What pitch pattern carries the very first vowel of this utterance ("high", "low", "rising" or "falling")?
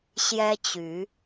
high